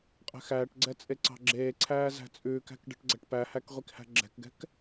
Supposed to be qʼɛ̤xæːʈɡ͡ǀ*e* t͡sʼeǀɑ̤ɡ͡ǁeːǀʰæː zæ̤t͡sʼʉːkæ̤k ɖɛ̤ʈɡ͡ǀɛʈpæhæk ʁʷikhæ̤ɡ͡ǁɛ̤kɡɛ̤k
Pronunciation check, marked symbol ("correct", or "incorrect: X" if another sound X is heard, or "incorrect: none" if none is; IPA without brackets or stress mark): incorrect: ɛ